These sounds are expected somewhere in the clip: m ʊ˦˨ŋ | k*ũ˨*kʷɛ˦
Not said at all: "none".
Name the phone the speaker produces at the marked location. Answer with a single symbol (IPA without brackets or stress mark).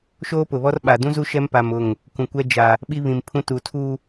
ũ˨